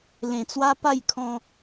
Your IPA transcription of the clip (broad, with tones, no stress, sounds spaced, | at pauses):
l ẽ˧ t͡s w a˦ p a˥˧ j kʰ ɔ̃˧